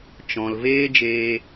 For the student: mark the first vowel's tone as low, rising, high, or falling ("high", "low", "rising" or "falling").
low